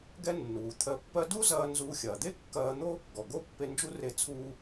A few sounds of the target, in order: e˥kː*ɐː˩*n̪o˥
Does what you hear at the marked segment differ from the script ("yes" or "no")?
yes